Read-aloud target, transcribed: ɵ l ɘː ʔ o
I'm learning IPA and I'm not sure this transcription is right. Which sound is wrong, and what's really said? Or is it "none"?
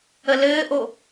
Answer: ɵ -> ə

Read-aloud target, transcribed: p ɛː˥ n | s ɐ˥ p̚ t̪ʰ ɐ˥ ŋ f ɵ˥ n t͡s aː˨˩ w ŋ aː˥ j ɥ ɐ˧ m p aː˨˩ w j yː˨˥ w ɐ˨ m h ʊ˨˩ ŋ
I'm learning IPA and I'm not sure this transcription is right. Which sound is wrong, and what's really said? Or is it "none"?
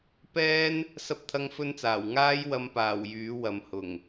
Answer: ɥ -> w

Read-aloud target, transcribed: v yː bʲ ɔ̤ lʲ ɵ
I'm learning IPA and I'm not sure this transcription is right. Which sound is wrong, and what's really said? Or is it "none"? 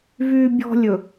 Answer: none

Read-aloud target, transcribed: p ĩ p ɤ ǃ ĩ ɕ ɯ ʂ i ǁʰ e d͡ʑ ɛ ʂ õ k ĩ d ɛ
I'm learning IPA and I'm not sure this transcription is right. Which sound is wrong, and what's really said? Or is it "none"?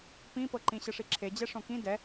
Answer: none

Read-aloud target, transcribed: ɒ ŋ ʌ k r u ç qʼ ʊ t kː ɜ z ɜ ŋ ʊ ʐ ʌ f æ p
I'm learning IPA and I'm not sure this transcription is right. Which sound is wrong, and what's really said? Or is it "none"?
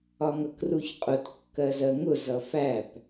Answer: ʐ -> z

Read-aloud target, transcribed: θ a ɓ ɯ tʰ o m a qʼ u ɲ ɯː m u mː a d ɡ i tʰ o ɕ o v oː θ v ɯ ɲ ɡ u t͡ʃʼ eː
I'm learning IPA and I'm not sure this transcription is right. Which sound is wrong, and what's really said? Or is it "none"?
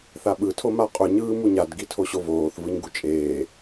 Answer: mː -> ɲ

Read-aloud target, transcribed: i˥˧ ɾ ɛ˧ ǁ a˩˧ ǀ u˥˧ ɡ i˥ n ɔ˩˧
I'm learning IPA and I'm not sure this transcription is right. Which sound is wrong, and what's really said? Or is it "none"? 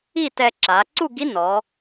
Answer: ɾ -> t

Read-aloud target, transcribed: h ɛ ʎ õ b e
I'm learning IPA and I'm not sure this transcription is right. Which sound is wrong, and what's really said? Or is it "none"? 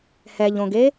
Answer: b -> ɡ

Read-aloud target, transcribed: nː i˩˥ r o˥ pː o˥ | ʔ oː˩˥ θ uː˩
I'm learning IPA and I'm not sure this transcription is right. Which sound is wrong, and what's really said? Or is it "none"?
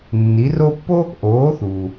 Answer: none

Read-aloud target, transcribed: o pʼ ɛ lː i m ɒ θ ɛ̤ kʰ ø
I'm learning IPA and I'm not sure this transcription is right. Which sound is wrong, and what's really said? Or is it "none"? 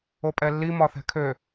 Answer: none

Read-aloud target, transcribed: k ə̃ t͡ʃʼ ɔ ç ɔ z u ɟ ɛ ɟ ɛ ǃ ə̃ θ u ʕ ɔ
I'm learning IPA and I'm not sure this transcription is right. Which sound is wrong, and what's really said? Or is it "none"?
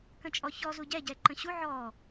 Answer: θ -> ɕ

